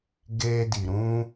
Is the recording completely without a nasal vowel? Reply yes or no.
no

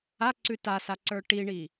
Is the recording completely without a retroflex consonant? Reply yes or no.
no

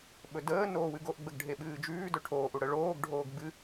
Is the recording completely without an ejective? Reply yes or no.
yes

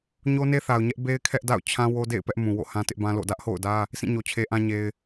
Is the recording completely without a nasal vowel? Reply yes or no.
no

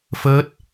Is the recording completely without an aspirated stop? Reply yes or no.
yes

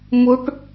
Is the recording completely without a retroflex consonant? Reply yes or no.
no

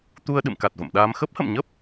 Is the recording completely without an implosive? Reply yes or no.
no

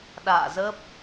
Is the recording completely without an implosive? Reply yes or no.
no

